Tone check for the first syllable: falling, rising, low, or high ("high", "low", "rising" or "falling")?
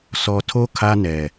low